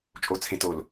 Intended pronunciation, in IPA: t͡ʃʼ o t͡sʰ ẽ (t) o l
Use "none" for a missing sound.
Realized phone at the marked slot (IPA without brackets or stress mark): t